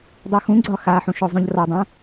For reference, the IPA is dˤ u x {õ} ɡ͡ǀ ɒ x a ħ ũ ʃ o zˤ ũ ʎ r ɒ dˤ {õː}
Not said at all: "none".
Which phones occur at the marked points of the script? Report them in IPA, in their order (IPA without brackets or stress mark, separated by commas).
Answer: ũ, õ